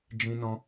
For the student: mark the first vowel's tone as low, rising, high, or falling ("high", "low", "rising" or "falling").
high